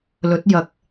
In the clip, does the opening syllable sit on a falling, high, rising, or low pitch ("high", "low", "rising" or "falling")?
rising